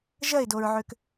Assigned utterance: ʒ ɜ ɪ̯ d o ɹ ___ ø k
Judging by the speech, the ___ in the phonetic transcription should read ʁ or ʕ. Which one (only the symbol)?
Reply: ʕ